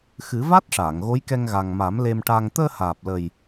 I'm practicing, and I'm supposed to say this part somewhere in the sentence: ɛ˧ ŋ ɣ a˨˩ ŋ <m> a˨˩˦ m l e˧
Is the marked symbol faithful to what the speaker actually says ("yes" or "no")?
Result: yes